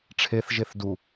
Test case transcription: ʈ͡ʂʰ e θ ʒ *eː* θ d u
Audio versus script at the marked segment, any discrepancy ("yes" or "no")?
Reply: yes